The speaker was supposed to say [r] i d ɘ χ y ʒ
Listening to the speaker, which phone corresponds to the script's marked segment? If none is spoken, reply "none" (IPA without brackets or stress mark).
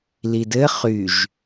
l